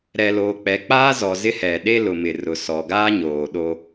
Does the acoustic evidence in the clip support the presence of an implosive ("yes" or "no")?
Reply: yes